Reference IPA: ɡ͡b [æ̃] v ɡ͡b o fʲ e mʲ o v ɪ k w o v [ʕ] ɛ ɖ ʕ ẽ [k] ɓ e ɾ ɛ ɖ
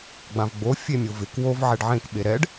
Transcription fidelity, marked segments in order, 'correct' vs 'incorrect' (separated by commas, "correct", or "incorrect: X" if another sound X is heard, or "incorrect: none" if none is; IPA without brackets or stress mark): incorrect: ã, correct, correct